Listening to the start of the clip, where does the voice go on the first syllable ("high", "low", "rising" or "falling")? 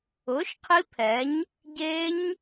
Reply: rising